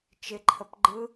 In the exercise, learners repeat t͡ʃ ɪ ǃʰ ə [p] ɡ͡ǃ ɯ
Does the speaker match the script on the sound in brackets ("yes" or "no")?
yes